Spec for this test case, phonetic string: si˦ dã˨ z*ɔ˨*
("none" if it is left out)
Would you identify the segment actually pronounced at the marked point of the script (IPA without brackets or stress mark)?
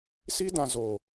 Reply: o˨